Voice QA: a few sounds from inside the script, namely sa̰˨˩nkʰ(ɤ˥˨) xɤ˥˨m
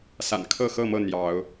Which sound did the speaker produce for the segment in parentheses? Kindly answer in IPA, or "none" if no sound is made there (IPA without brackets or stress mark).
ɤ˥˨